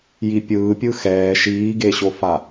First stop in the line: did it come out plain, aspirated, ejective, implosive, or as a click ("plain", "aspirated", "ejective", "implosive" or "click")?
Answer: plain